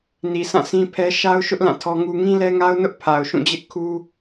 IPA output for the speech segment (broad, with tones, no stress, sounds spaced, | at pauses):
n i˨ sʰ ã˦˨ sʰ ĩ˦ pʰ ɛ˦ ʃ a˦ ʊ̯ ʃ ʊ˦ ʔ l ã˦˨ tʰ ɔ˦ ŋ u˦ ŋ ĩ˦ l ɛ˦ ŋ a˦ ʊ̯ n ʊ˦ ʔ pʰ a˨ ʊ̯ ʃ ũ˦˨ d͡ʑ ɪ˦ ʔ kʰ u˦